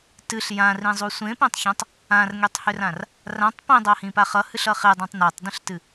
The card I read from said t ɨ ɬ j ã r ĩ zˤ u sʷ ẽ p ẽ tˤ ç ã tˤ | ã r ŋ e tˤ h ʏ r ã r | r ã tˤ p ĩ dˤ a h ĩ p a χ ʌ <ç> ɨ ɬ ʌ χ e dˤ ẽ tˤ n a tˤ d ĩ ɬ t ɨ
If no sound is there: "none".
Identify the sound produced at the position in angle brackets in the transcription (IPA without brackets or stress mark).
h